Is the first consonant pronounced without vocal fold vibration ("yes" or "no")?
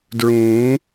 no